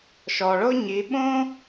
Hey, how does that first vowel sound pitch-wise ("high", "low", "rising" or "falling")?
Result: low